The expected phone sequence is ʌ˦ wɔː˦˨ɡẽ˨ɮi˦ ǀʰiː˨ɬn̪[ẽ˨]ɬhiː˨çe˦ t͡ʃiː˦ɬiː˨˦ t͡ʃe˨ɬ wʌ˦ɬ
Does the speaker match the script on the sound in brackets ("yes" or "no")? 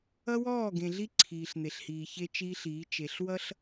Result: no